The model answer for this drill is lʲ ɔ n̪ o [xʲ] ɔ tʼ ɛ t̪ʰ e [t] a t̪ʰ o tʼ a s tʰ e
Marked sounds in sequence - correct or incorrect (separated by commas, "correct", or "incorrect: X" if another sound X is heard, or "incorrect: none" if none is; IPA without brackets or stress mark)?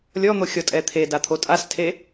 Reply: correct, incorrect: d